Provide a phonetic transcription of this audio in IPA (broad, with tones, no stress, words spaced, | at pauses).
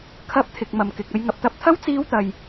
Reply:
kʰɐ˧p̚ t̪ʰɪ˨k̚mɐ˨mkɪ˨k̚ ɐ˧j ŋɐ˨p̚t̪ɐ˧p̚t̪ʰɐ˥w t͡siː˧wt̪ɐ˨j